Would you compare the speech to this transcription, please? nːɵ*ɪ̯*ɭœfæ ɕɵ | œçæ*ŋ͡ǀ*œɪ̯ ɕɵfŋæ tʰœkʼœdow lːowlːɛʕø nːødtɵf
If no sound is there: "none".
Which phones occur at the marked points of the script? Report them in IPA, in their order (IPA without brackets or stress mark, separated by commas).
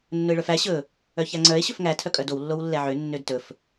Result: ɪ̯, ŋ͡ǀ